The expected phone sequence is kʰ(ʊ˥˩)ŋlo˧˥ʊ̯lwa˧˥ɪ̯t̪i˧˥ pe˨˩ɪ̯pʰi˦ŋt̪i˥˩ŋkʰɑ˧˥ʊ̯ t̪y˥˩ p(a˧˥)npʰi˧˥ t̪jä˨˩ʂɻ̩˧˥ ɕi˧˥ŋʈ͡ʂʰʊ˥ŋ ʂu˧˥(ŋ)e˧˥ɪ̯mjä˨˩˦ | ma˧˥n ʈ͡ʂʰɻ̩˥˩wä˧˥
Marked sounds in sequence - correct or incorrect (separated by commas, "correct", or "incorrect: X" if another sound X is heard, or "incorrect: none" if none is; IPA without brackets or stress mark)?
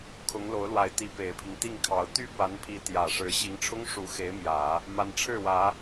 incorrect: ʊ˧˥, correct, incorrect: x